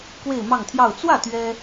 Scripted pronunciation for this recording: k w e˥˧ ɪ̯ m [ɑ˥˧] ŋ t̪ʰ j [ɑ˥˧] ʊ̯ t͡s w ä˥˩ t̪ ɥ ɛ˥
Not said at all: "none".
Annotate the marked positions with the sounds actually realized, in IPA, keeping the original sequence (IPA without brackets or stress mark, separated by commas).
ɑ˥˧, ɑ˥˧